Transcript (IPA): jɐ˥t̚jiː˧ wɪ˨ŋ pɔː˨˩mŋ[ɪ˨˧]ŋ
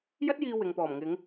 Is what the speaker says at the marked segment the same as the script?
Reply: yes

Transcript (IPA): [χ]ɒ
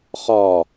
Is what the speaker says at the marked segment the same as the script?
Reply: yes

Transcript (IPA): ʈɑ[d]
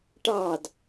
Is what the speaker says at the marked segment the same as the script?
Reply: yes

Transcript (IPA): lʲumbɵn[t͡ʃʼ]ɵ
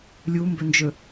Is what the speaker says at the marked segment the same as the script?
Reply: no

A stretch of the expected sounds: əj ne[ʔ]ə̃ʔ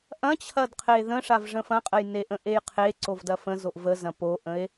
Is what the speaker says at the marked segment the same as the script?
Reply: yes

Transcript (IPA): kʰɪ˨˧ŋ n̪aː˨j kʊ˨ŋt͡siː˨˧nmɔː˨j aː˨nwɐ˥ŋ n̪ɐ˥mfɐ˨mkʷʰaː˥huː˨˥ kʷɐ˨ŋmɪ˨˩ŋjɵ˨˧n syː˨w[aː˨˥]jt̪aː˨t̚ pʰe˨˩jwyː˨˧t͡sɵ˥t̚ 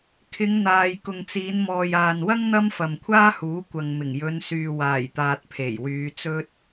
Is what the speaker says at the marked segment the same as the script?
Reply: no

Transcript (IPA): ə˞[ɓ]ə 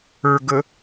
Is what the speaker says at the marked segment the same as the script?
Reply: no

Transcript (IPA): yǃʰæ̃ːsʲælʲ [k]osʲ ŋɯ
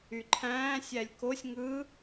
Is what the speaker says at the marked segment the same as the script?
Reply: yes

